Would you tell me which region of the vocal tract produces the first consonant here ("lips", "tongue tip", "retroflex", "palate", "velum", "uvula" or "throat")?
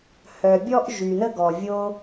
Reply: throat